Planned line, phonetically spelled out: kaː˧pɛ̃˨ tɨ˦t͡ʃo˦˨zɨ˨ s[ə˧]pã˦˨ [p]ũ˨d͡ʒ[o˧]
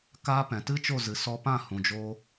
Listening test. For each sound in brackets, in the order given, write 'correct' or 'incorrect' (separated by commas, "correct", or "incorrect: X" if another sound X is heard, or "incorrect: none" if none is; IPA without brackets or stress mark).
incorrect: ɔ˧, incorrect: h, correct